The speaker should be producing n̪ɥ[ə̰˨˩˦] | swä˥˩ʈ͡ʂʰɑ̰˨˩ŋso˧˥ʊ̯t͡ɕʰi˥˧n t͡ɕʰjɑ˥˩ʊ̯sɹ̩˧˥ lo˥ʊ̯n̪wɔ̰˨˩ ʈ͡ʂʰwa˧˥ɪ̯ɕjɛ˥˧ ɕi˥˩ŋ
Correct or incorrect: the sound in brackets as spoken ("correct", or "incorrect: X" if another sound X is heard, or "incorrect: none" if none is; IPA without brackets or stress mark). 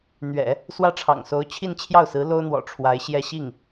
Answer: incorrect: ɛ̰˨˩˦